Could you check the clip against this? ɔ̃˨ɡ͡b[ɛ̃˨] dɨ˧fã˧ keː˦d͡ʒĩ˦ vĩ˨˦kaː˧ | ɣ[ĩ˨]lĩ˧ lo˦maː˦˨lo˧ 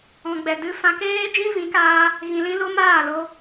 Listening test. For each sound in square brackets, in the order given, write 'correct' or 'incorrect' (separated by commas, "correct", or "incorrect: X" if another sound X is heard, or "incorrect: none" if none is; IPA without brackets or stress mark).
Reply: incorrect: ɛ˨, correct